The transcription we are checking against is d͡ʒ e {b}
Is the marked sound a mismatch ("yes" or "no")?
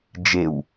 yes